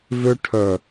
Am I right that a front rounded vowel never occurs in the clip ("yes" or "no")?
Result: no